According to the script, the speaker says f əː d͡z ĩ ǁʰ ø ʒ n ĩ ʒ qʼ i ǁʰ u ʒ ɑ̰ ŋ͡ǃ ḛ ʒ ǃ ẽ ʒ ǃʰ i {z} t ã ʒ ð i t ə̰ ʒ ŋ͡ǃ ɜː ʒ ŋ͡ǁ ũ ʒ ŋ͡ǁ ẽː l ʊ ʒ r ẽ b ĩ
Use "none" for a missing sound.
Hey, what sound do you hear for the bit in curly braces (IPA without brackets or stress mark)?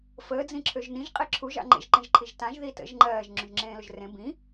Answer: ʒ